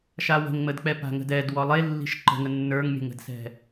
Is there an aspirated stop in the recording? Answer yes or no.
no